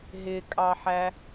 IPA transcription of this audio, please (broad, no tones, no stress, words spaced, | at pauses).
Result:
ɦɪkʼɑħæ